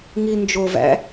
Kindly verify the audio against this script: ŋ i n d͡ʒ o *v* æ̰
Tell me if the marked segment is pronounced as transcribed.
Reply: yes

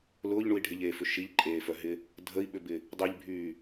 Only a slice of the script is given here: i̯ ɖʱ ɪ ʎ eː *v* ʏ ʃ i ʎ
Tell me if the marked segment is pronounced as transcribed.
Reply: no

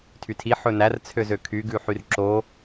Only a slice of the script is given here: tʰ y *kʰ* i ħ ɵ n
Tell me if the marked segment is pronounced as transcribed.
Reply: no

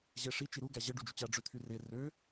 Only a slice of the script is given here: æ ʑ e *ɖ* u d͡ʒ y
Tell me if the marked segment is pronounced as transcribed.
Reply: yes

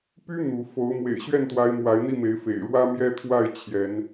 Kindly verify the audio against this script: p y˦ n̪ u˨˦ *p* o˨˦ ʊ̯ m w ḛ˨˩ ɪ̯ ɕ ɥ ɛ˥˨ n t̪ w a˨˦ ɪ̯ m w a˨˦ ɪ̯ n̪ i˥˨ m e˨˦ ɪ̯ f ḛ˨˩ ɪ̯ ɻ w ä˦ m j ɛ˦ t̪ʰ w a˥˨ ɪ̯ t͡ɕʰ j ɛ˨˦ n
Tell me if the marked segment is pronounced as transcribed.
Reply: no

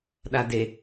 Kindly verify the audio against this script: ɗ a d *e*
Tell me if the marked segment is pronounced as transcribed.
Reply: yes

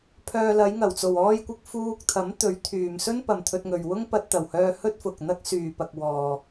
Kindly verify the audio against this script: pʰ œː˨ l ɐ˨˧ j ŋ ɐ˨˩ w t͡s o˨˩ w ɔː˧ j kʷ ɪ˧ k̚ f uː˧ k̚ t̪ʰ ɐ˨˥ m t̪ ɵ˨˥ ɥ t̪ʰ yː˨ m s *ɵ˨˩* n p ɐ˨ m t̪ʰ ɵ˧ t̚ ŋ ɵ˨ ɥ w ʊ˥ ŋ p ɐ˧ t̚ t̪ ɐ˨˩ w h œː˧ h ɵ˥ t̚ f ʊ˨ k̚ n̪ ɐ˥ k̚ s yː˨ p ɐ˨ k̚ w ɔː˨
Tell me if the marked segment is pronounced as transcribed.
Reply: no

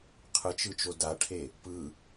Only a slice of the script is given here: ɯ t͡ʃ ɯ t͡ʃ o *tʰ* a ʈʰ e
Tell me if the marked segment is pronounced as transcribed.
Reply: no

